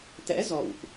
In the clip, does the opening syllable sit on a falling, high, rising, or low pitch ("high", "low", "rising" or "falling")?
rising